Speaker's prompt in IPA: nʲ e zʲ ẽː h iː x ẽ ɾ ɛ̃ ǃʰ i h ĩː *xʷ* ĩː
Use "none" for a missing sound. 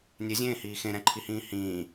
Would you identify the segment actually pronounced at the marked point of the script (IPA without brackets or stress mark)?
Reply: h